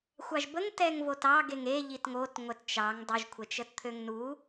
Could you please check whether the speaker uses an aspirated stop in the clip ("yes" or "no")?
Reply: yes